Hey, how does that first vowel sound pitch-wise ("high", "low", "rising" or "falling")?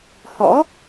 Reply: rising